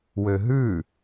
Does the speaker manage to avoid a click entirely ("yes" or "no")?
yes